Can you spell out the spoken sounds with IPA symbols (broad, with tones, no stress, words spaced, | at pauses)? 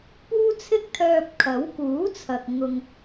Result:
puː˥t͡sʰɪ˥k̚t̪ʰœː˧p̚kʰɐ˨˥w kuː˨˥ t͡sʰɐ˨k̚ ŋʊ˧ŋ